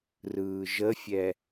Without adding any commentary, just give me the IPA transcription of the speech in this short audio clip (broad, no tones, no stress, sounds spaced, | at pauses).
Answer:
r ɯː ʒ ə fʲ ɛ